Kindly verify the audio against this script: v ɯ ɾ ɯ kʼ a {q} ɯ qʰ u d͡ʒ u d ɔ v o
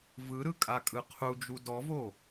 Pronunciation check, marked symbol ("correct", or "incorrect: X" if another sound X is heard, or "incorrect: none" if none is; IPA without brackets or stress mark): incorrect: kʼ